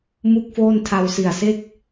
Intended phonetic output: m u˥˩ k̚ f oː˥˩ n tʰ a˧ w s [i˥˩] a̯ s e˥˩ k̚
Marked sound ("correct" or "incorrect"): incorrect